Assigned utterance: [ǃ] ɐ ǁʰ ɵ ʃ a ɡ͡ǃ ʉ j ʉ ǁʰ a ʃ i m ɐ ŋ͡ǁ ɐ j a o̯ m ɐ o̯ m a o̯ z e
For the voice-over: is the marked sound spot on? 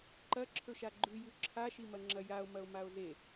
yes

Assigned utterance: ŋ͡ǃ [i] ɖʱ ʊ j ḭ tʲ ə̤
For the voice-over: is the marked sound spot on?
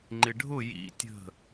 no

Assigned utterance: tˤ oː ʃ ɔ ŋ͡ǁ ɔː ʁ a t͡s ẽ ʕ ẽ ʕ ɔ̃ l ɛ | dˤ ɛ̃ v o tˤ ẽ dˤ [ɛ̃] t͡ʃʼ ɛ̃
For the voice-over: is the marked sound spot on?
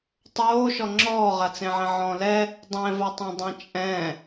yes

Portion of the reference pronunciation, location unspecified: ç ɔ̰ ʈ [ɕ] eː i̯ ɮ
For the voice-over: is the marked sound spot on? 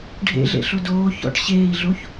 yes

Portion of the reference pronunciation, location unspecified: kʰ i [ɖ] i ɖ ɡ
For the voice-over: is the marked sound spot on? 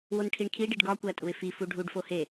yes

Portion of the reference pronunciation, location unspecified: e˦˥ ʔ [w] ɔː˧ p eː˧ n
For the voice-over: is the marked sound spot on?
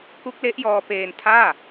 no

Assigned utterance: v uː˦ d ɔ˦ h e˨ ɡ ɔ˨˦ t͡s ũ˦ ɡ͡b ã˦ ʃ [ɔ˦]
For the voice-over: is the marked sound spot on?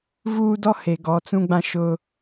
no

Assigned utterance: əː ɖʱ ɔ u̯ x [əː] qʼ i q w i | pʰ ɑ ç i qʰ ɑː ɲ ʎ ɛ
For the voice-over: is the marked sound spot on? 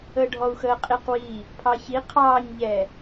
yes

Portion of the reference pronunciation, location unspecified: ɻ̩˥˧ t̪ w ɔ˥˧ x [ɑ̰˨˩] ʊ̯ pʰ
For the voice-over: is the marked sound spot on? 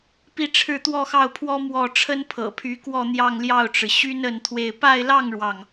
no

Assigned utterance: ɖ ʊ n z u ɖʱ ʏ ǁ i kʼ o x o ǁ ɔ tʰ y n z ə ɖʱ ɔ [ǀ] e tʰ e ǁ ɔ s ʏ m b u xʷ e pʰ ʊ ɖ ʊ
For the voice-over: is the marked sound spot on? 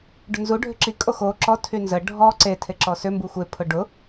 yes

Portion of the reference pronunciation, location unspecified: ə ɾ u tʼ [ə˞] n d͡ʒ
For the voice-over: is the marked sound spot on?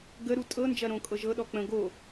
no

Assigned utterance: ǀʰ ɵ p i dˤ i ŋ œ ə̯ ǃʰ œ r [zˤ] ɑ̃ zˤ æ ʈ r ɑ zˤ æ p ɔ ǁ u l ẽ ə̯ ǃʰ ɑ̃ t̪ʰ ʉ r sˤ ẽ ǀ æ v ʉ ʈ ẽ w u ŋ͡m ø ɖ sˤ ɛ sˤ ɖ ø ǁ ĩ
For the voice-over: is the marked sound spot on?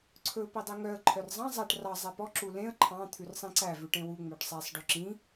yes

